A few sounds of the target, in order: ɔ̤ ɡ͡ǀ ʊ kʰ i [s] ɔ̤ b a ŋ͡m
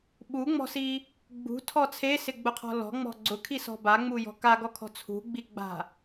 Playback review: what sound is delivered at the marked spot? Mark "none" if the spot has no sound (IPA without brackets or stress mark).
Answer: s